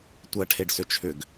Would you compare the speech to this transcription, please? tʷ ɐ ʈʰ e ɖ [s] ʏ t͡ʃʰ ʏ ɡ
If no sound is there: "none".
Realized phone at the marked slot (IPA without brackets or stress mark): s